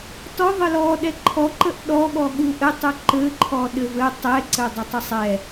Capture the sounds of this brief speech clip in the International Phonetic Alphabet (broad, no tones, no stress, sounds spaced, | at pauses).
t ɔ ðˤ ɘ l ɔ ɗ ɛ ǃʰ ɔ ǃ ə ʔ ɗ ɔ ɠ ɔ ɠ u ʔ ɘ tˤ u ǃ ɘ ǃʰ ɔ ɗ ɘ v ɘ tˤ ɛ ǀ ɘ dˤ ə tˤ ə sˤ ɛ